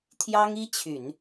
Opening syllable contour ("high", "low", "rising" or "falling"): high